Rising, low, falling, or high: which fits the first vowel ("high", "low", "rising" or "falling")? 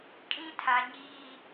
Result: high